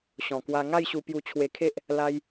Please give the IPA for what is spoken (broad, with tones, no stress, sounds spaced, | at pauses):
ɕ ɔ̃˨˩ k w a˧ ŋ a˥˧ j ɕ u˧ p j u˧ t͡ɕʰ w e˧ kʰ e˦ ʔ | l a˦ j